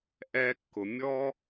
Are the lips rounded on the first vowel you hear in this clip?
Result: no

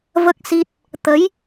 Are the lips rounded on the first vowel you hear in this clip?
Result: no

